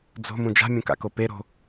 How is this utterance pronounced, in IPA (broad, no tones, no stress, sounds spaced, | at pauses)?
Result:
d͡z o̤ m ũ d͡ʒ a̤ mʲ ũ k a̰ k o p e ɾ o̤